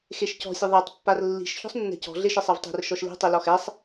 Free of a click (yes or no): yes